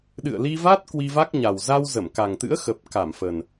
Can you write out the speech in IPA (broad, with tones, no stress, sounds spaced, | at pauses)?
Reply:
ɗ ɨ̰˧˨ ə̯ l i˧ v a˦˥ t̚ k w i˧ v a˦˥ k̚ ɲ a˨˩ w z a˧ w z ə˧˩ m k a˨˩ ŋ t̪ ɨ̰˧˥ ə̯ x ə˨˩ p̚ k a˧˩ m f ə˨˩ n